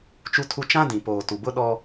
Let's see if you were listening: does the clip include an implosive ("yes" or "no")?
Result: yes